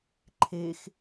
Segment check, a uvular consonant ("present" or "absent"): absent